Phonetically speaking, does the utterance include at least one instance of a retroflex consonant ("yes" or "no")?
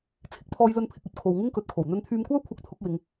no